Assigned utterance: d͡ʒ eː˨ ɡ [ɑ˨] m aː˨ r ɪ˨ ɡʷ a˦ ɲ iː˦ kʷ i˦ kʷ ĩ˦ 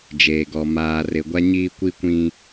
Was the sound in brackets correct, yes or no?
no